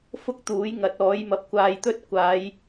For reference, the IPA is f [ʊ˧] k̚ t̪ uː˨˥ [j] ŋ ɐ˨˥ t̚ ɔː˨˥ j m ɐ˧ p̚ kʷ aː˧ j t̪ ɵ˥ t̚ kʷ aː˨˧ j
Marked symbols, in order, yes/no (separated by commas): no, yes